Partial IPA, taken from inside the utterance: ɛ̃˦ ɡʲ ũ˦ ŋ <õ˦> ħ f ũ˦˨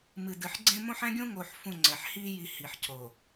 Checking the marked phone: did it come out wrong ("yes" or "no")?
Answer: yes